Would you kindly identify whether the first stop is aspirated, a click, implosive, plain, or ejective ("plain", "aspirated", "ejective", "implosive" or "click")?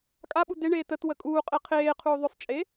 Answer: ejective